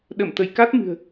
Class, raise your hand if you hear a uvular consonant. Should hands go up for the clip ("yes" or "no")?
no